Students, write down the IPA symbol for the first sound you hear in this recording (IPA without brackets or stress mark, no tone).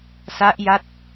s